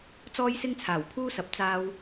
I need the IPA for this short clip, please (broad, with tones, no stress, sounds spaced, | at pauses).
t͡s ɔː˥ j s ɪ˥ ŋ t͡sʰ aː˨˩ w pʰ uː˥ s ɐ˨ p̚ t͡s aː˧ w